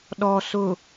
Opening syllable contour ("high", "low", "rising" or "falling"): low